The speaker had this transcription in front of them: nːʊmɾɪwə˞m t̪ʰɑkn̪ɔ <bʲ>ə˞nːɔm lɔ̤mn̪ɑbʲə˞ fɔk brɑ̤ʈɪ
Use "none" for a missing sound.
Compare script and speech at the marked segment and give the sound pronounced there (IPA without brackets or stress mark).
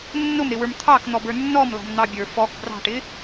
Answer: b